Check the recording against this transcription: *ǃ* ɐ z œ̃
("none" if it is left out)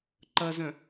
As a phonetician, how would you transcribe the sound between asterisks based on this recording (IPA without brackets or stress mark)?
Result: ǃ